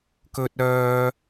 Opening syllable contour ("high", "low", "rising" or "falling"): high